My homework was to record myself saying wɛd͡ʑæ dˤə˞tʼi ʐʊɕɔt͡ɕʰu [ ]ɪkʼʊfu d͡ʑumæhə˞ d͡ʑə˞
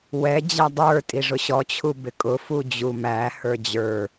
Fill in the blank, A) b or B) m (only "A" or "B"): A